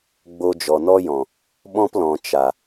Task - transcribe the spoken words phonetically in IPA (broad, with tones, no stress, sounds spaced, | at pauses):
ɡ͡b o˧ d͡ʒ ɔ˨ n ɔ˦ j ɔ̃˨ | ɓ ɔ̃˦ p l ɔ̃˨ t͡ʃ a˨